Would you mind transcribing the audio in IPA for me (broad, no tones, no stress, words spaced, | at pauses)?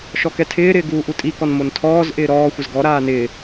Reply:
ʃɔkɛtʰɪːɾɪː ɡuːʔutʼikɔn montʰɔːzʔɪː ɾɔːxʷɪz ɡɔɾaː nɪː